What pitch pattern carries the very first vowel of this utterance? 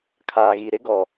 low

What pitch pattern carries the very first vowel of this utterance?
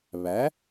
rising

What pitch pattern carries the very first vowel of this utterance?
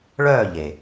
falling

